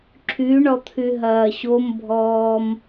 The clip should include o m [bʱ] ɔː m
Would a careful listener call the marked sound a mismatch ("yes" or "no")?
no